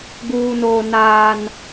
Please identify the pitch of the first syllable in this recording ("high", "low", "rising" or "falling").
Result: high